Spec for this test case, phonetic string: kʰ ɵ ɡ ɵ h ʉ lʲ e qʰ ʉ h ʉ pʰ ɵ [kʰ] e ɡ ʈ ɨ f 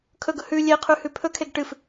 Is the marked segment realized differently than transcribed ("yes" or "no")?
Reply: no